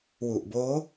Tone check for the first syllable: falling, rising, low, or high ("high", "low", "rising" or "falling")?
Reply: low